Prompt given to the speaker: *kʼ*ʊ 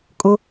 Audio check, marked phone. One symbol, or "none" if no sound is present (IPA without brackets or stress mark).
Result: kʼ